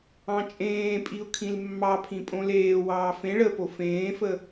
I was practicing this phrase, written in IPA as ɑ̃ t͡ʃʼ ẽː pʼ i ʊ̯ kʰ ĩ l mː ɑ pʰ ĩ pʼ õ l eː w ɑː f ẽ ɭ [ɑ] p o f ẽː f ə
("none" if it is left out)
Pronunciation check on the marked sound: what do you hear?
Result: ə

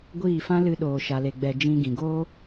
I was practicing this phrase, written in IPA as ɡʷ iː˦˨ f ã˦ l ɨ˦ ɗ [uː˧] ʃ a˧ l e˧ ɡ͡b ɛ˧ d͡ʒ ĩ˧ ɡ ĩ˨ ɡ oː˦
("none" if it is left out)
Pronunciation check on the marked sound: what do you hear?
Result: oː˧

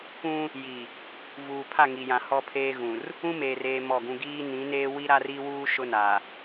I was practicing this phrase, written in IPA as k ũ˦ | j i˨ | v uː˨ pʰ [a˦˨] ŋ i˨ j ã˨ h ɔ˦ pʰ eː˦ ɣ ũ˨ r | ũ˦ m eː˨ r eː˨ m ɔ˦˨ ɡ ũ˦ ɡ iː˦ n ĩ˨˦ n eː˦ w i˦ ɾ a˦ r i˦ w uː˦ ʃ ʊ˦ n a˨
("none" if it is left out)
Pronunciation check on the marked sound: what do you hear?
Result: a˦˨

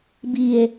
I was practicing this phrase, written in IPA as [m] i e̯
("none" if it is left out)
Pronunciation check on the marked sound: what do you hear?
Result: b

